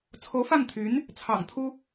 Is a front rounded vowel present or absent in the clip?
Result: present